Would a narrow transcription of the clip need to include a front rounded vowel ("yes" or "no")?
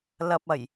no